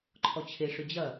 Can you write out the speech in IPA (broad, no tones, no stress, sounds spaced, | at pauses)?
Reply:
ǃʰ ɔ t͡ɕʰ e ʂ ʏ d͡ʑ ɐ